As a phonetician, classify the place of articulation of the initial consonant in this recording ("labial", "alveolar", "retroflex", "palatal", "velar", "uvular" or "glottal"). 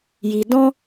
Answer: palatal